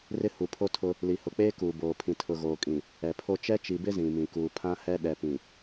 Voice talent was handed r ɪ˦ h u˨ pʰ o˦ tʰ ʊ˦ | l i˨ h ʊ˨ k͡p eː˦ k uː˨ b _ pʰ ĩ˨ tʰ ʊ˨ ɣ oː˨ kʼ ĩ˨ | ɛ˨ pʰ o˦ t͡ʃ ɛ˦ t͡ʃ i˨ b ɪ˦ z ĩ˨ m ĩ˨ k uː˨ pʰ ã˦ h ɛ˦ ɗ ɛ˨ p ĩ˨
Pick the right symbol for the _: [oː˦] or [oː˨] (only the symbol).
oː˨